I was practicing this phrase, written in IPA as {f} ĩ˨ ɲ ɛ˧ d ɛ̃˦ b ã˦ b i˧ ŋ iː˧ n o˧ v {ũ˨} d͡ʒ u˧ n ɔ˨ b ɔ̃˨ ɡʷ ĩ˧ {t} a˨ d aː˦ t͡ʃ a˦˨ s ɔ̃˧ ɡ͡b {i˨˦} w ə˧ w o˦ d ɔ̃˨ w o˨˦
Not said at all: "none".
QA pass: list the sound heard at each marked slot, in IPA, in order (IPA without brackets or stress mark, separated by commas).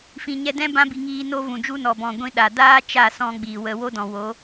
f, ũ˨, ɗ, i˨